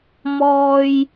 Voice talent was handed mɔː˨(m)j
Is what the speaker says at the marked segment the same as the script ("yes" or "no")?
no